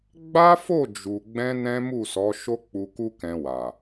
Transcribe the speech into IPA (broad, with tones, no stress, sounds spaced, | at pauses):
ɡ͡b a˦ f o˦˨ d͡ʒ u˨ ɡ͡b ɛ̃˧ n ɛ̃˦ m u˦˨ s ɔ˨˦ ʃ o˦ k͡p u˧ k u˦ k ɛ̃˧ w a˨